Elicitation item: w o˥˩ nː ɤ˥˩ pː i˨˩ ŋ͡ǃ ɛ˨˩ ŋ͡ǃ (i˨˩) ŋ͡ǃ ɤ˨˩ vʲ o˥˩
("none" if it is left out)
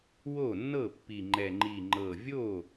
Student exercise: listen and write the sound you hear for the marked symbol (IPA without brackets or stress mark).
i˨˩